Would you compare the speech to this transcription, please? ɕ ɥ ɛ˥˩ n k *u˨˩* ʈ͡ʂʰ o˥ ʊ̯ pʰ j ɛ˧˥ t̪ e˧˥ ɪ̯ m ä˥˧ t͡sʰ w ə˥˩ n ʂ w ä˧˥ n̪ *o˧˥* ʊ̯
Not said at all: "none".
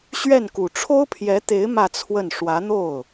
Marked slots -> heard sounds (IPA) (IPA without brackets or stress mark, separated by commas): u˨˩, o˥˩